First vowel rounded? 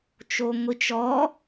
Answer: yes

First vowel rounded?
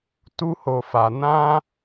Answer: yes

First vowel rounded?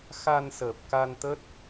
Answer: no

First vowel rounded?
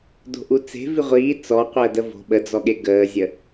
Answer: yes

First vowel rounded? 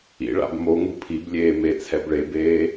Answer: no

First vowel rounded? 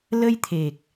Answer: no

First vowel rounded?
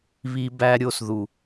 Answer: no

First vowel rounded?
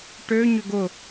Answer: yes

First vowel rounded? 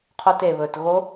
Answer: yes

